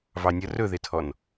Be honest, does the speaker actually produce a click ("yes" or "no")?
no